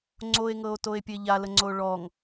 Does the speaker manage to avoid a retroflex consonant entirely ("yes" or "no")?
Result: no